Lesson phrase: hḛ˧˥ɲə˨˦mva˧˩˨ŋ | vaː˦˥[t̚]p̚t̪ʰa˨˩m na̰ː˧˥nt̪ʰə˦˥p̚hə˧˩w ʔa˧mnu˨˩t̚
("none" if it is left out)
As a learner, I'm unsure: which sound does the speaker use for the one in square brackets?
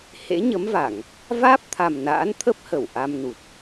none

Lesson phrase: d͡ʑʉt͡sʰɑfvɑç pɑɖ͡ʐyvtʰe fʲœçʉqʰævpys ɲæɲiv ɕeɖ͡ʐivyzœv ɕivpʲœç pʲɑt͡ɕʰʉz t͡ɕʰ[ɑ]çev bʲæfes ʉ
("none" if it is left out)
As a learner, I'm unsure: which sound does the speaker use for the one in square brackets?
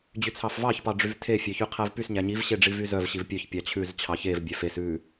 ɑ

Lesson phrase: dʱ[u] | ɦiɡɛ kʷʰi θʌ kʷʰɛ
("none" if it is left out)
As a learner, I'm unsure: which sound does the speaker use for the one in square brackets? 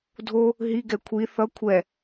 o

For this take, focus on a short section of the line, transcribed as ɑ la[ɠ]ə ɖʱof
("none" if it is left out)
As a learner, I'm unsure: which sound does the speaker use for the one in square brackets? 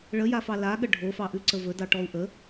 ɠ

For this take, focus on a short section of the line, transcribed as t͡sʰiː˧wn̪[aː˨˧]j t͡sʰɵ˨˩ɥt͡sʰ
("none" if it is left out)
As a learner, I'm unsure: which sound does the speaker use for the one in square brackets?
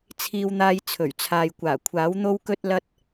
aː˧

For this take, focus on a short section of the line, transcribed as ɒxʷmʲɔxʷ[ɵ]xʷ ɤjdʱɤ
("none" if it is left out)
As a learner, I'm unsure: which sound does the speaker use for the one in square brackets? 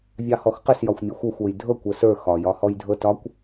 ɤ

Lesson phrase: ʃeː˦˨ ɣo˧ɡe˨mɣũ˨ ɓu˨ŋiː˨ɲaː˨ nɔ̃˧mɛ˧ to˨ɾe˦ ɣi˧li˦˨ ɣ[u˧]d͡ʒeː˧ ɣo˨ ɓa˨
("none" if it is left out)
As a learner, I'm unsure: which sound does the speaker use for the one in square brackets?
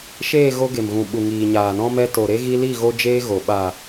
o˧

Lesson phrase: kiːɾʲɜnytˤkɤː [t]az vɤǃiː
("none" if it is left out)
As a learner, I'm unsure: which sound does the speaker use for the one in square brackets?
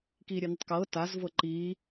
t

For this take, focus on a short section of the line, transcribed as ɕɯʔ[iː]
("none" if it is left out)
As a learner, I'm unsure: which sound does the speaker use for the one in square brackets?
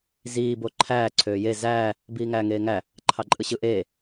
eː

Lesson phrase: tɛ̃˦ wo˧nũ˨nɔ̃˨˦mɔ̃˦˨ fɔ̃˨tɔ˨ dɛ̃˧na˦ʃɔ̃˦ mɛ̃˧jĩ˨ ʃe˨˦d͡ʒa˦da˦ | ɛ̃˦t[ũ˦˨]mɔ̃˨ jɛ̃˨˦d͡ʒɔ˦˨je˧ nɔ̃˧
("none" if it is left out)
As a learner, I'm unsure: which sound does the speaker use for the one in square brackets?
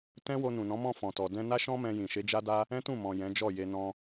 ũ˦˨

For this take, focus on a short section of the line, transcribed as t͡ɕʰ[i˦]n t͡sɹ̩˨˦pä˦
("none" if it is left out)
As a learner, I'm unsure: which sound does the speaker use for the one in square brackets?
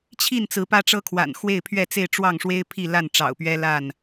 i˥˨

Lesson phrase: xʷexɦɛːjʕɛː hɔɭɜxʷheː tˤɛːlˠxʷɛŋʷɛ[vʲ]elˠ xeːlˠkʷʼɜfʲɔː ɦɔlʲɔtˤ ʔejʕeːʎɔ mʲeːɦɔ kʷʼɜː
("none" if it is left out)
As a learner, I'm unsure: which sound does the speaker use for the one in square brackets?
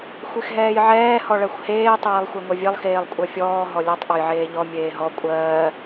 vʲ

